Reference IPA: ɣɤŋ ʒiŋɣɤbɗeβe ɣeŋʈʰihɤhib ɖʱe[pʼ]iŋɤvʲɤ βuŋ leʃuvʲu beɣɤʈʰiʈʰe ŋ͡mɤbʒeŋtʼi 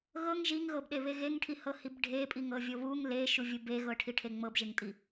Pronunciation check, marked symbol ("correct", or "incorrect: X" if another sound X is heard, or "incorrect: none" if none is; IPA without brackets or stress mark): correct